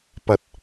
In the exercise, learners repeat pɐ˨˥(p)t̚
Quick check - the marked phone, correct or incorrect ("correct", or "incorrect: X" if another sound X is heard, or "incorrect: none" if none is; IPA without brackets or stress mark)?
incorrect: none